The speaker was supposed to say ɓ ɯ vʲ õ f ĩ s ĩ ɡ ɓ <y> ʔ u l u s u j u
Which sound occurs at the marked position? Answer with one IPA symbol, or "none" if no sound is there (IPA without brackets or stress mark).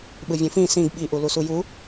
i